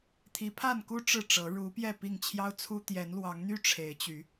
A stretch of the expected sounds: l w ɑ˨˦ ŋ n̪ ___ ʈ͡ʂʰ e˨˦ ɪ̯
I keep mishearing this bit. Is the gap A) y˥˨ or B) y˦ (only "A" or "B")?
B